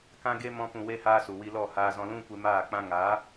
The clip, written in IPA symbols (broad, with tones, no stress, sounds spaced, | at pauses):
k ã˦ ɡ e˦ m ɔ̃˦ p ũ˧ w e˦ h aː˦ s u˨ w i˧ l ɔ˦˨ h aː˧ z ɔ̃˧ l ũ˦ kʷ e˧ m aː˦˨ k͡p ã˦ ŋ aː˨˦